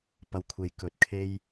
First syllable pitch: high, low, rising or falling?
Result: low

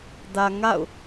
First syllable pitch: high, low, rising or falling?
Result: low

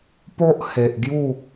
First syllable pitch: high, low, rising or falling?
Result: high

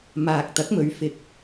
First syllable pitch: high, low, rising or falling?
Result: low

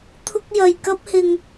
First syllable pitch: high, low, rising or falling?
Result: high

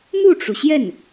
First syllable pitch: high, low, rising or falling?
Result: falling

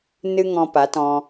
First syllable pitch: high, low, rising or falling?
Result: high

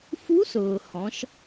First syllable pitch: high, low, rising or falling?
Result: rising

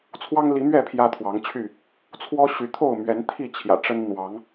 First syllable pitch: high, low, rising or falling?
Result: high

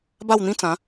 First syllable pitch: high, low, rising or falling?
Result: falling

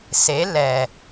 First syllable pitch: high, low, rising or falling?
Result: rising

